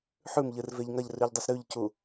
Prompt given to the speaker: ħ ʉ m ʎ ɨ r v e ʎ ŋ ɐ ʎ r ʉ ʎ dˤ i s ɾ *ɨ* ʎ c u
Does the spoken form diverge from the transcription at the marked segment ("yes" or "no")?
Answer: yes